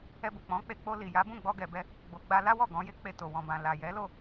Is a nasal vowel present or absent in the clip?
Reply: present